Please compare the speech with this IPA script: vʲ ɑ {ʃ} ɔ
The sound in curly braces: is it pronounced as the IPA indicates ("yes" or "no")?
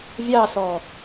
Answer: no